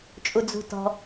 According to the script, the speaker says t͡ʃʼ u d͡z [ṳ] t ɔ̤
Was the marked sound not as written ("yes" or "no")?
no